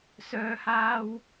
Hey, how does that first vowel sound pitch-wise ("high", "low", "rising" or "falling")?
low